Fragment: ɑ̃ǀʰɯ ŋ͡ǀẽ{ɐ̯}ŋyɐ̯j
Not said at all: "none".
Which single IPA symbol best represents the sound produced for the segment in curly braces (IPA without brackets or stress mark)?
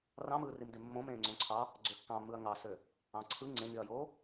none